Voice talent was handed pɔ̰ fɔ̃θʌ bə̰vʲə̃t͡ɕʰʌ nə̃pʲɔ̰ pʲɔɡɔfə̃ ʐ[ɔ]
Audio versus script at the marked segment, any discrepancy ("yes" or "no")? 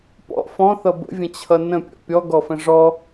no